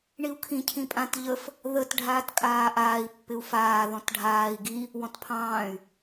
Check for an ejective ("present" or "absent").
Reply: present